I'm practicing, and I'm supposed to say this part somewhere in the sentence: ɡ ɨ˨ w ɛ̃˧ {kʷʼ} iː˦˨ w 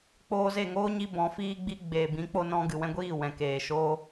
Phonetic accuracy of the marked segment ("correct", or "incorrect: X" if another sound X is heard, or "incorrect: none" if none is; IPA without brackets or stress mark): incorrect: ɡʷ